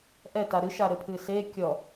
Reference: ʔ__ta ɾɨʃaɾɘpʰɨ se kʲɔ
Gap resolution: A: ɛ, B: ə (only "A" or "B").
A